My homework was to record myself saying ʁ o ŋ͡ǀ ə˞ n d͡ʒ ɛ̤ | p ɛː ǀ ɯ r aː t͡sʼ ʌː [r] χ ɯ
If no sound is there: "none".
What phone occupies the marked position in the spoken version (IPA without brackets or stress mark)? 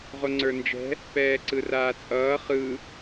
none